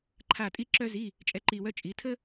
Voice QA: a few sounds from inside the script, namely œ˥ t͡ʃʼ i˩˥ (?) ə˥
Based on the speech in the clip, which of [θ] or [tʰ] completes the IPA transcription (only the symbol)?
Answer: tʰ